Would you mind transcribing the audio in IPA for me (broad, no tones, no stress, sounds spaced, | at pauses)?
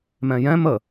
m ɛ̃ j ɛ̃ m ə